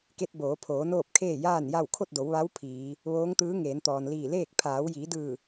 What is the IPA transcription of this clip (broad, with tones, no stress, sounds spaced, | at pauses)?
k e˧ t̚ b oː˩˧ pʰ oː˩˧ n oː˥˨ p̚ kʰ eː˥˨ j aː˥˨ n j a˥˨ w kʰ o˥˨ t̚ d o˩˧ w ʋ a˧˥ w pʰ iː˩˧ | ʋ oː˧˥ ŋ t̪ ɯː˧˥ ŋ eː˩˧ n t̪ ɔː˩ n l iː˧˩ l eː˥˨ k̚ pʰ aː˩˧ w j iː˩˧ d ɯː˧˩